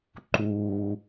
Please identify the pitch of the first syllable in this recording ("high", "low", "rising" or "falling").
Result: low